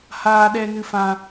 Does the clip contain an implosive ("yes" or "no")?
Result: yes